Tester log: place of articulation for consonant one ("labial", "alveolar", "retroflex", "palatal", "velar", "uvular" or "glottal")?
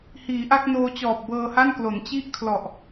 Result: glottal